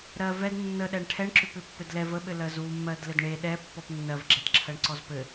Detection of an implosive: present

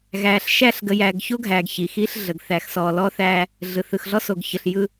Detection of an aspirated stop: absent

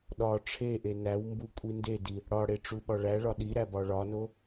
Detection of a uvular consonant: absent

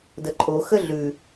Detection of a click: present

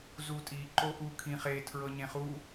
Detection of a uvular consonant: present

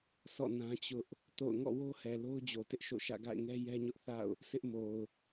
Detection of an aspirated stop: absent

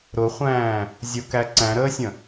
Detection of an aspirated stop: absent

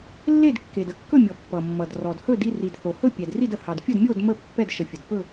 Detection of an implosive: absent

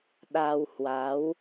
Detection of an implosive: present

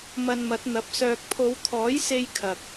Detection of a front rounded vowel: present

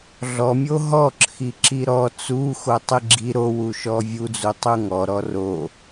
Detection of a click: present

